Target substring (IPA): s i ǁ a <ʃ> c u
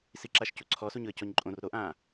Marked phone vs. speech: correct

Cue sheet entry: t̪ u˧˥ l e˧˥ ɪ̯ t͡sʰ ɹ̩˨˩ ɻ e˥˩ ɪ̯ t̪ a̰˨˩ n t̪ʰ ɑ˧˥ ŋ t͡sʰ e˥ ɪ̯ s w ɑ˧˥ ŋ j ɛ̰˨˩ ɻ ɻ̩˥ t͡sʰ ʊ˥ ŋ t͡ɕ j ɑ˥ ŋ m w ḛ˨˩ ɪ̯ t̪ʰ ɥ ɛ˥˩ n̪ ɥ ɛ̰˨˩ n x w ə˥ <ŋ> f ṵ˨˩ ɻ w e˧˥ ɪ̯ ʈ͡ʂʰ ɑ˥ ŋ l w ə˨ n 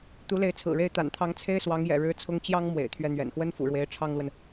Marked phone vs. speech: incorrect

